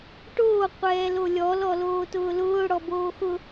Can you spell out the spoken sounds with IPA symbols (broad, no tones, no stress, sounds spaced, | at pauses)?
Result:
ʈ oː qʷ ɛː l o lʲ ɔ l ɔ l oː t ʊː l ʊː ɽ ɔ b oː x ʊ